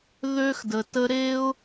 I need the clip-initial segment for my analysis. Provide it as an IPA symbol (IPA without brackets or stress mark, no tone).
ð